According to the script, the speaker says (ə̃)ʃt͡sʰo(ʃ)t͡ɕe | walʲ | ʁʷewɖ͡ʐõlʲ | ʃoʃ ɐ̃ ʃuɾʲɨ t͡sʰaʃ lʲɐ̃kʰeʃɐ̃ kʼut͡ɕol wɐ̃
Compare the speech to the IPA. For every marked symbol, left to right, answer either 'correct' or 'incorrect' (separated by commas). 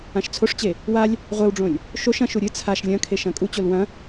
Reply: incorrect, incorrect